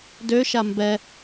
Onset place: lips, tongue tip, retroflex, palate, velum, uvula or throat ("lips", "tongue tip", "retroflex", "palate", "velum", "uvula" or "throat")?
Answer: tongue tip